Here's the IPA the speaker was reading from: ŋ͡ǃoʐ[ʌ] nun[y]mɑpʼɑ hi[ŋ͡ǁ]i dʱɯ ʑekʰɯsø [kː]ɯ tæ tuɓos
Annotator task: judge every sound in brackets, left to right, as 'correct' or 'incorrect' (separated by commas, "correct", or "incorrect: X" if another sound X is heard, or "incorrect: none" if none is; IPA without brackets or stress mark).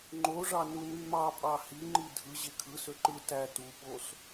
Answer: incorrect: ɑ, correct, incorrect: ŋ͡ǃ, incorrect: ǃ